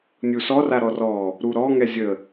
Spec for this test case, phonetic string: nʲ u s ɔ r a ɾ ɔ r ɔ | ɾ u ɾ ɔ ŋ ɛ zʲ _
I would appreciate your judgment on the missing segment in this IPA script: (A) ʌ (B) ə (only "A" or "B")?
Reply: B